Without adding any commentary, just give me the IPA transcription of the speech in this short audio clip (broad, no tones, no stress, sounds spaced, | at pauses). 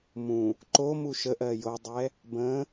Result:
m ũ | ǃ o m u ʃ ə ʔ ɜ j o dˤ ɛ | b ə̃